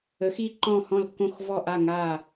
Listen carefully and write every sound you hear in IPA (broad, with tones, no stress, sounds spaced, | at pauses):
ə˨˥ x i˦˨ ǃ ɔ̃˦˨ h ɔ̃˦˨ l kː õ˦˨ x v ɔ˦˨ ʔ a˦˨ ŋ a˦˨